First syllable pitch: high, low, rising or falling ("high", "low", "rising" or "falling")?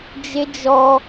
high